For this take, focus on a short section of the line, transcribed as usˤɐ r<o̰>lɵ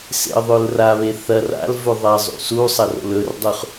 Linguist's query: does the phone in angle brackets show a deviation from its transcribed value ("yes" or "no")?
no